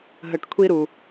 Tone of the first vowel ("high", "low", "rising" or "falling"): low